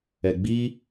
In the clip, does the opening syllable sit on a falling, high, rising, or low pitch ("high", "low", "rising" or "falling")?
low